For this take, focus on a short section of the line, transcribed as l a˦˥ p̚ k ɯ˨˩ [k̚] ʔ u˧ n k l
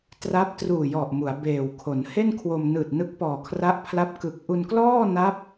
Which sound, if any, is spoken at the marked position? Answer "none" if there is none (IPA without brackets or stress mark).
k̚